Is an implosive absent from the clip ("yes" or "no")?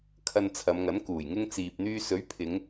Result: yes